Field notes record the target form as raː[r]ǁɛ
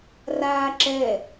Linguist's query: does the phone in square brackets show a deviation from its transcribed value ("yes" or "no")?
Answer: yes